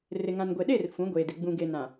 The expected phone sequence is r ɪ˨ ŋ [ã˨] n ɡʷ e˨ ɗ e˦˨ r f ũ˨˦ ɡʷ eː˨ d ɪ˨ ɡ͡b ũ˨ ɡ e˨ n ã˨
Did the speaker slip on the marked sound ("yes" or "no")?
no